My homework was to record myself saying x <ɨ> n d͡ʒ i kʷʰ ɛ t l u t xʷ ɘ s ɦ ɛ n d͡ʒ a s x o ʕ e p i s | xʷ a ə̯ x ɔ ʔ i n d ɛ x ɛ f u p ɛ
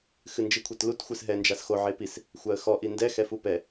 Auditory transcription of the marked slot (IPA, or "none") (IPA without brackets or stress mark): ɨ